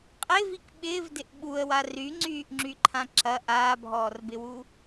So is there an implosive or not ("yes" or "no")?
yes